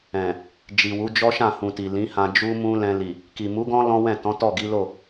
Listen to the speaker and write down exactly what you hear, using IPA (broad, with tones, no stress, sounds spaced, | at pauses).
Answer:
ɛ̃˨ | d͡ʒ i˨ w u˨˦ d͡ʒ ɔ˦ ʃ ã˦˨ h ũ˨ t i˨ l ĩ˨˦ h ã˧ d͡ʒ u˦ m ũ˦ l ɛ̃˧ l i˨ | k i˨ m u˨˦ ɡ ɔ̃˦ l ɔ̃˦ w ɛ̃˦˨ t ɔ̃˨˦ t ɔ˦˨ ɡ i˨˦ l o˦˨